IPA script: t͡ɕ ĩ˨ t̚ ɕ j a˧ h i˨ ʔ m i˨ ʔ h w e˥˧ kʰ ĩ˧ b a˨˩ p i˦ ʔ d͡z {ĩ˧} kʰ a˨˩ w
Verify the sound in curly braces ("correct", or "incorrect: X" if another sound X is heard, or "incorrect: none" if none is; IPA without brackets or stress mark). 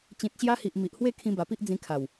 correct